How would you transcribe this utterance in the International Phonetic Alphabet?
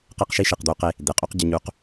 q e˦ q ʃ i˦ ʃ i˨ q d̪ u˦ q e˦ | d̪ e˨ qʼ u˦ q ɟ ɪ˦ ɲ u˦ q

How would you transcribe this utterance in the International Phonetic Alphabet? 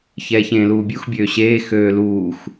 ç ɛː ç ẽː l uː bʲ u x bʲ øː ɕ eː x øː l uː x

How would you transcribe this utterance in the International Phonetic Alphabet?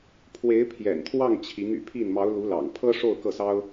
pʰ w e˧˥ ɪ̯ pʰ j ɛ̰˨˩ n t̪ʰ w ɑ˥˩ ŋ t͡ɕʰ i˧˥ ŋ y̰˨˩ pʰ i˥˩ n m ɑ˧˥ ʊ̯ l u˧˥ l ɑ̰˨˩ ŋ pʰ ɤ˥ ʂ o˥˧ ʊ̯ k ɤ˥˩ s ɑ˥ ʊ̯

